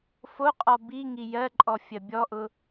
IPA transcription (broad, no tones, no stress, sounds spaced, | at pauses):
f o qʼ ɔ b i ŋ i j ɜ ǃʼ ɔ fʲ ɜ bʲ ɔ ʔ ʊ